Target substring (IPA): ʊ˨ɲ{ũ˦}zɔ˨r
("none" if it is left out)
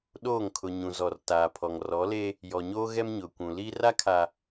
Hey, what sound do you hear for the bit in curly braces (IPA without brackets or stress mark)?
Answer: ũ˨